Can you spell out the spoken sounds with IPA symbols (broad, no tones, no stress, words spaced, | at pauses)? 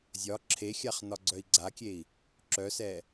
zʲɒ ǁʰexʲaχ nɒɡ͡ǀœi̯ɡ͡ǀakʲei̯ | ǁœsɛ